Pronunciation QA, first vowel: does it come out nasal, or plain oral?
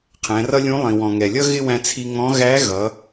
nasal